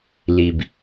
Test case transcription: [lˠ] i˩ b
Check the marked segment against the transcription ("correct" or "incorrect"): incorrect